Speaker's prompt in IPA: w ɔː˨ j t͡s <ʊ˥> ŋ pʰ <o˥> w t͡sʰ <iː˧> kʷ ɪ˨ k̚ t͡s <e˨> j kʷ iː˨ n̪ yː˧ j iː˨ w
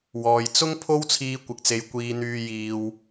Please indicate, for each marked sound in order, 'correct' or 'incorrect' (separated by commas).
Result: correct, correct, correct, correct